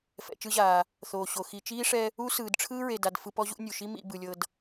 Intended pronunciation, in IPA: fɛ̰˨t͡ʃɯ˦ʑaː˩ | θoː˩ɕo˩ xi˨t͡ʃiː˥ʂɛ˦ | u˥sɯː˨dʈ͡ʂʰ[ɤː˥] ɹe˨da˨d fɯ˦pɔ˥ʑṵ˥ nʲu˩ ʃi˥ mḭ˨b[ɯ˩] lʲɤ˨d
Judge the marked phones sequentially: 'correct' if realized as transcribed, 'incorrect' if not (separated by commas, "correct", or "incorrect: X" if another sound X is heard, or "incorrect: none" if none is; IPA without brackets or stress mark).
incorrect: ɯː˥, correct